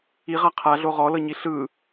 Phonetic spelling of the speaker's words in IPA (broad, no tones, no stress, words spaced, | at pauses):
iʁa qʰaɮo ʁɔlɤɲi ɬɯ